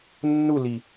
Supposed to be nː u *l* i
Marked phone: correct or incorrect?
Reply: correct